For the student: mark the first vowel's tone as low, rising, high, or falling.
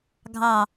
falling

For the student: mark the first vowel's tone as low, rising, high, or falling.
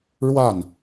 falling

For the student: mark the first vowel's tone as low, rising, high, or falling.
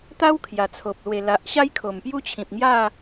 high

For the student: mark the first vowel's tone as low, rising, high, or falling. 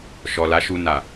low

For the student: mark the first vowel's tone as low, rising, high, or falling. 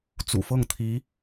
low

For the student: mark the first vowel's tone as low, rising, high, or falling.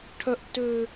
high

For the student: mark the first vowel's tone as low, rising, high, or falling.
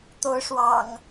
rising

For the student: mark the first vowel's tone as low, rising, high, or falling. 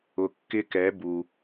low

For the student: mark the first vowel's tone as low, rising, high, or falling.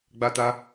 high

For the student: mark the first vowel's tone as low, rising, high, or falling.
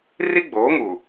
high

